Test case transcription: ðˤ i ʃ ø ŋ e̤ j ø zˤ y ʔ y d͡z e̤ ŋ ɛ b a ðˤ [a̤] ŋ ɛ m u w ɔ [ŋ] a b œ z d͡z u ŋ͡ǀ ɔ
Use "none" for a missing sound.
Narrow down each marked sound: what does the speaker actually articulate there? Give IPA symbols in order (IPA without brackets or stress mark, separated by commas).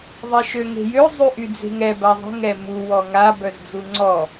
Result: ə̤, ŋ